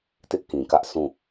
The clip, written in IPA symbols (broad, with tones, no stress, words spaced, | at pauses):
tɪ˦ʔkĩ˨kä˦ʔ sũ˦˨